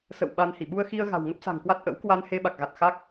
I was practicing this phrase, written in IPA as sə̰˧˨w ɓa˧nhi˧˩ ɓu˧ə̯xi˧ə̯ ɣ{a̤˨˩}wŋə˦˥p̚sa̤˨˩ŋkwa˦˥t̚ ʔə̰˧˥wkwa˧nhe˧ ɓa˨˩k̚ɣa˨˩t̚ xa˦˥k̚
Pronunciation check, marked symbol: correct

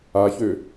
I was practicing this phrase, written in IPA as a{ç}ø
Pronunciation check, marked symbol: correct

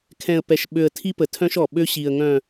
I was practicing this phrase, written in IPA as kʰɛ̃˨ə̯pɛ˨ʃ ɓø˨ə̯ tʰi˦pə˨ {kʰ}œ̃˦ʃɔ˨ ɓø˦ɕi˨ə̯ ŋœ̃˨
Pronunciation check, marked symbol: incorrect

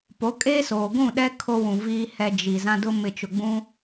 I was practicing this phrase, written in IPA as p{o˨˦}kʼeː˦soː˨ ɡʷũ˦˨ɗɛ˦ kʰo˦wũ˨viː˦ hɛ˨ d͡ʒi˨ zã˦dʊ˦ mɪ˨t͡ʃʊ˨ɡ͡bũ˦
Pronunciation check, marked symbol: correct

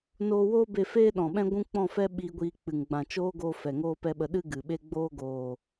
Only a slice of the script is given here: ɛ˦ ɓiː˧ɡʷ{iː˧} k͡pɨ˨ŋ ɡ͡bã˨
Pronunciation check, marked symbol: correct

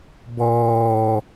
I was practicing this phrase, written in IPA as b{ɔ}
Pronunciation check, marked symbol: incorrect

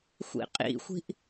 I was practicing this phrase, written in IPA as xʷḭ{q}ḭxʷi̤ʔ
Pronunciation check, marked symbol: incorrect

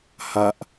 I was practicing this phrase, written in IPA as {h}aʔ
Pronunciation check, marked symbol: correct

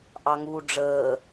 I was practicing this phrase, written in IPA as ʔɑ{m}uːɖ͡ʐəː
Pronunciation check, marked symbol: incorrect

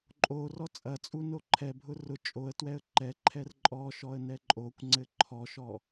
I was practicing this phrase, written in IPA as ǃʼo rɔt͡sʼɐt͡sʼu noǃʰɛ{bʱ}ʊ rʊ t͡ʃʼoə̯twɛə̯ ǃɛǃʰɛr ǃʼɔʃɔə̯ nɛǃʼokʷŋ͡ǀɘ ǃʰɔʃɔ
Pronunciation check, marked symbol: correct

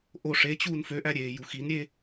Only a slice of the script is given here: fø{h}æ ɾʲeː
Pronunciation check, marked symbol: incorrect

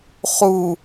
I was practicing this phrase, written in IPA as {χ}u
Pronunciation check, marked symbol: correct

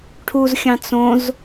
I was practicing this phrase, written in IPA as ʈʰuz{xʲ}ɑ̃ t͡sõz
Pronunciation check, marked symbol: correct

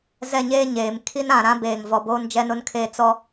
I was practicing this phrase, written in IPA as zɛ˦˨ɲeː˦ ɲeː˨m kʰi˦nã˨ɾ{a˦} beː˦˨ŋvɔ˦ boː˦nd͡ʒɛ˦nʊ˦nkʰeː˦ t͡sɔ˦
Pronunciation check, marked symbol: incorrect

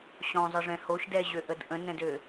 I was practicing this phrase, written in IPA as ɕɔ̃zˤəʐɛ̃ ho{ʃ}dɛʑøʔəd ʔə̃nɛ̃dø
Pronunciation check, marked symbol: correct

